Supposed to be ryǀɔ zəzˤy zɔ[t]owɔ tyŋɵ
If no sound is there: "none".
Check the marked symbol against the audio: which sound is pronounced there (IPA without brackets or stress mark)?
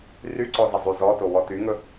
t